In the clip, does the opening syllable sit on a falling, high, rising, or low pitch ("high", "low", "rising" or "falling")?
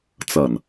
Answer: low